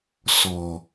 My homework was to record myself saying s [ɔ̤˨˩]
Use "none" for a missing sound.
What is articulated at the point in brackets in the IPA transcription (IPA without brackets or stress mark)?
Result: ɔ̤˨˩